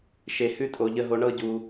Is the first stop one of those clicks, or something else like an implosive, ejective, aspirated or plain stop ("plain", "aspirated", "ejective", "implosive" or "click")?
ejective